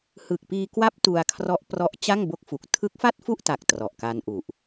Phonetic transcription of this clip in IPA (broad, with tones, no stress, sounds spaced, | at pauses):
h ɯ˨˩ k̚ p iː˧ k w a˦˥ p̚ t u˧ a̯ kʰ r ɔ˦˥ ʔ p r ɔ˦˥ ʔ t͡ɕ a˥˩ ŋ b o˦˥ k̚ f u˨˩ k̚ tʰ ɯ˦˥ k̚ f a˥˩ t̚ f u˥˩ ʔ t a˨˩ k̚ t r ɔ˨˩ ʔ k a˧ n ʔ u˨˩ ʔ